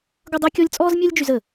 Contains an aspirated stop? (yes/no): no